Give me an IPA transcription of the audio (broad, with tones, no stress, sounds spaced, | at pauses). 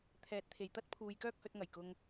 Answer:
t̪ʰ ɛː˨˥ t̚ t̪ʰ e˨ j t̪ ɐ˥ t̚ pʰ uː˧ j k œː˥ k̚ h ɵ˨˥ t̚ ŋ ɐ˨ j k ʊ˧ ŋ